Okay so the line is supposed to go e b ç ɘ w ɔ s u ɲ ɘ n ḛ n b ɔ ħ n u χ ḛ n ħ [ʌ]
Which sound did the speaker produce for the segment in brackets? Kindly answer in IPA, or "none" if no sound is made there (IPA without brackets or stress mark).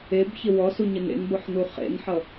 ʌ